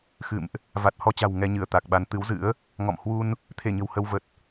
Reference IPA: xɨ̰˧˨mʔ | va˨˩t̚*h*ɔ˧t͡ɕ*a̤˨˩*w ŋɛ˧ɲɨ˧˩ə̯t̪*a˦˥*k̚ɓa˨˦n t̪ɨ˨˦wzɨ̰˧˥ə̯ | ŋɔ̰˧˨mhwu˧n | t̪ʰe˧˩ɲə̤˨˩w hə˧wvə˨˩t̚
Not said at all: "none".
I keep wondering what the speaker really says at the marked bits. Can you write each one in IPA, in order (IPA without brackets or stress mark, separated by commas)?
h, a̤˨˩, a˨˩